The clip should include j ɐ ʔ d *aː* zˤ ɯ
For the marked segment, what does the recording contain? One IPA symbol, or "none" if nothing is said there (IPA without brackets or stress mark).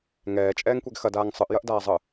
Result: aː